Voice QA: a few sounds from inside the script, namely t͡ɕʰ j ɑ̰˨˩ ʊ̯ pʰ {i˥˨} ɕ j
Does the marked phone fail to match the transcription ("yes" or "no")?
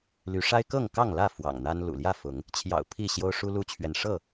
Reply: no